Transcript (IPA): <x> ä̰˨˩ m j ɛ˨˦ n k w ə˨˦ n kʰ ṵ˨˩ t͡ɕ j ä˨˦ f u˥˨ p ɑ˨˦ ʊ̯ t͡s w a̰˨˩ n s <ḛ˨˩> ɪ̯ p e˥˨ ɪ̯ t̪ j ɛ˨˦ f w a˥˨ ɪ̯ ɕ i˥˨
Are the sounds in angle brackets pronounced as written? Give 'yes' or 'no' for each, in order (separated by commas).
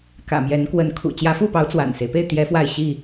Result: no, no